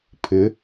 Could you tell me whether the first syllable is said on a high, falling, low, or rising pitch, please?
rising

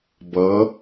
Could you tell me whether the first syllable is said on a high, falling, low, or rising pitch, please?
rising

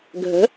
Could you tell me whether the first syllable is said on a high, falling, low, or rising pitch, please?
rising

